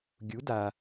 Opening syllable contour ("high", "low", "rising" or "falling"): rising